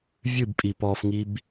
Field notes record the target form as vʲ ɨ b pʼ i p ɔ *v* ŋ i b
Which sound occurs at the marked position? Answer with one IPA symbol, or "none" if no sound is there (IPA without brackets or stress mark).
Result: f